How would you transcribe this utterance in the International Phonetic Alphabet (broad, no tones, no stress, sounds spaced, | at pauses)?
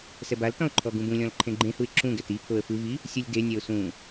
s ɛ b a l t ɔ̃ ʊ̯ ǃʰ ɔ ɡ ũ b ũ lʲ ɔ̃ l ǃʰ ẽ ɡ͡ǃ ẽ h u ɪ̯ ǁ ũ ɡ ɛ t i pʰ o ə̯ f ɯ v i | sʲ u lʲ d e nʲ ɛ ʊ̯ s ũ